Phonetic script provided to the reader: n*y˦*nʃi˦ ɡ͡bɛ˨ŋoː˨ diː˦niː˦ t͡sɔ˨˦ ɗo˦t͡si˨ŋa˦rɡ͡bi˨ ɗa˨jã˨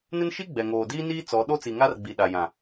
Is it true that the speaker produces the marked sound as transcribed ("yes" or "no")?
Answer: no